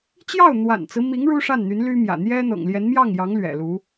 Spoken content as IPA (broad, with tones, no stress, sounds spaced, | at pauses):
t͡ɕ j ɑ˥˩ ʊ̯ n̪ w a̰˨˩ n t͡s ɹ̩˦ m i˧˥ ŋ ɻ u˥ ʂ a˥˩ n n̪ y˧˥ n l y˥ m j ä̰˨˩ n̪ j ɛ˥ n̪ ɤ̰˨˩ ŋ l j ɛ˧˥ n m j ɑ˥˩ ŋ j ɑ˧˥ ŋ l ɥ ɛ̰˨˩ l u˧˥